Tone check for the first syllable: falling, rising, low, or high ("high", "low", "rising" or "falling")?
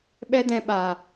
high